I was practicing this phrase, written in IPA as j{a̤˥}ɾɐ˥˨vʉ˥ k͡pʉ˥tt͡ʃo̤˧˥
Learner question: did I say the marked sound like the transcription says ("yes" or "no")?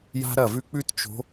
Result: yes